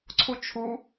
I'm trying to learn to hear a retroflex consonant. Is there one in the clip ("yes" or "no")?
no